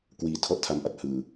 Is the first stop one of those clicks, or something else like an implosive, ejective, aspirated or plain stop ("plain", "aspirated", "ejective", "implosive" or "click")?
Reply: plain